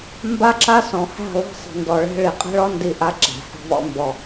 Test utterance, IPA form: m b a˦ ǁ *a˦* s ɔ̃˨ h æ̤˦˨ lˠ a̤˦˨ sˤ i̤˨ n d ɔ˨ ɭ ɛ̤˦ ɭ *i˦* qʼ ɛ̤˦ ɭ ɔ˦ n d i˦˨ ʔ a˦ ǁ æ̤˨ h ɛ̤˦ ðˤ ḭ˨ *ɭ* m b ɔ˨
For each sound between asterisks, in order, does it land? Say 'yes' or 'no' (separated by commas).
yes, no, no